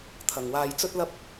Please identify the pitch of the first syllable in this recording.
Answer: low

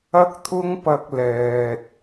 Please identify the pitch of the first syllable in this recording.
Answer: high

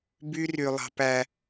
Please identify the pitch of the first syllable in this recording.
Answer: high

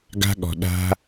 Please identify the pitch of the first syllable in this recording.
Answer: high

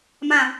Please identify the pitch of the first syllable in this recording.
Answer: low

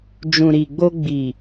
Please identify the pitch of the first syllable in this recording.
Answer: low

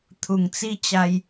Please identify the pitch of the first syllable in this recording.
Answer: low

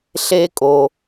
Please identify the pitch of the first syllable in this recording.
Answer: high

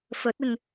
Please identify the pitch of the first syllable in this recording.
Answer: rising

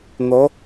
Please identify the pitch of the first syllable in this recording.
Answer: rising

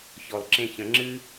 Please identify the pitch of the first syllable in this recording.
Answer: low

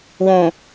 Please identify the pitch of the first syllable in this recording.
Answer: low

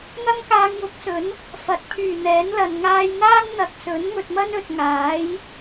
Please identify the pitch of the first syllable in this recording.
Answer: high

